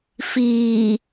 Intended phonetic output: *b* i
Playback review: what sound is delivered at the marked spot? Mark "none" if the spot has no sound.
f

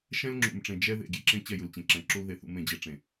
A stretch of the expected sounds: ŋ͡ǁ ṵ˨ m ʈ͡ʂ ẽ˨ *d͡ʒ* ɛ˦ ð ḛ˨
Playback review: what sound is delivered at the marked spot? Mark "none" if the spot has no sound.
d͡ʒ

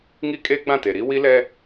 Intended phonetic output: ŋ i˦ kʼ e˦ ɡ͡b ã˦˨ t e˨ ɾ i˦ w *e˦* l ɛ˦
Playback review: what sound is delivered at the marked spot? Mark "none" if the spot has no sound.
i˦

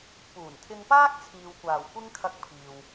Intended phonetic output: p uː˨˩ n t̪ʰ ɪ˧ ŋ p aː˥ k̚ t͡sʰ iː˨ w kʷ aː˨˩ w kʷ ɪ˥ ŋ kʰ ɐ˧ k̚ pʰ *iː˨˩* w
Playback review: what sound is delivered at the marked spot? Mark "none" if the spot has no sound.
iː˨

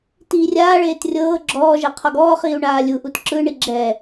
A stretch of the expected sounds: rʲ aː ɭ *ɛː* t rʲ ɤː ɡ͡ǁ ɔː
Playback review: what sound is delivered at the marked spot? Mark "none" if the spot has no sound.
eː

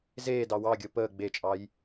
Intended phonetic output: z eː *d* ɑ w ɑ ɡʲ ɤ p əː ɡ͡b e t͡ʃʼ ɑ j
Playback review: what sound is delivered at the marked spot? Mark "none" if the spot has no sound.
d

